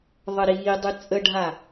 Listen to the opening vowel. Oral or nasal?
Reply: oral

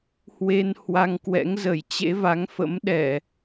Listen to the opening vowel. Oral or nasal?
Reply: oral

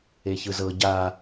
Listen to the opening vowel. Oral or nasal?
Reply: oral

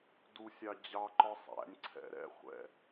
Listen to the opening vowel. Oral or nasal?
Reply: oral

